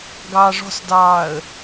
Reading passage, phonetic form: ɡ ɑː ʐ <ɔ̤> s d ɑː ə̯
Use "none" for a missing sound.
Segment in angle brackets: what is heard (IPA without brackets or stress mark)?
ɔ̤